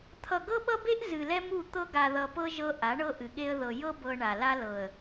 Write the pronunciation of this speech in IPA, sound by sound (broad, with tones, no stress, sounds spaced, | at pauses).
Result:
t̪ʰ ʌ˨ ɡ ɤ˦ ɓ ʌ˦ b e˦ ʔ z ɨ˨ l ɛ˦ m u˦˨ t̪ ɤ˦ ɡ a˨ ð ʌ˨ p ɤ˦ ʒ ɤ˦ ʔ a˨˦ ɳ ɤ˦ ʔ ɨ˨ ɠ e˦ ə̯ ð ɤ˨ j ɤ˦ b ɤ˨ ɳ a˨ l a˦ l ɤ˨ ə̯